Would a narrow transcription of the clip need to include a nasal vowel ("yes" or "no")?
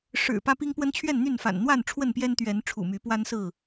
no